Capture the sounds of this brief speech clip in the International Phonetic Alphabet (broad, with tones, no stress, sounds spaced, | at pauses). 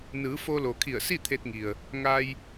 n ɯː˩˧ f o˧ l o˩ kʰ i˧˩ ə̯ s i˥˨ t̪ʰ e˧ t̚ ŋ i˩ ə̯ | ŋ a˧ j